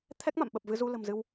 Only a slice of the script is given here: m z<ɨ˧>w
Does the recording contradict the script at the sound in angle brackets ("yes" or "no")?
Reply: no